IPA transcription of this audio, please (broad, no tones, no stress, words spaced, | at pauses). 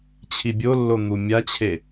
t͡ɕʰibʲolːo n̪umʲat͡ɕʰe